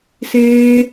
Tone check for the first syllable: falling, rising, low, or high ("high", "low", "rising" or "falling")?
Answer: high